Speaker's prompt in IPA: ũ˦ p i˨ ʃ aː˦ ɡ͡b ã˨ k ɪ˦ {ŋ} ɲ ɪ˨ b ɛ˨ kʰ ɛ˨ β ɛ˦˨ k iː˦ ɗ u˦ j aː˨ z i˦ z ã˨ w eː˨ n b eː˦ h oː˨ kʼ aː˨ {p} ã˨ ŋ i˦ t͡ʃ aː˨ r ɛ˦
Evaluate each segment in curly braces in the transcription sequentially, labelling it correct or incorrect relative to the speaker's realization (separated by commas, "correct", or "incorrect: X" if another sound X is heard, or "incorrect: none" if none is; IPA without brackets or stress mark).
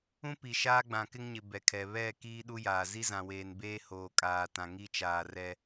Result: correct, incorrect: t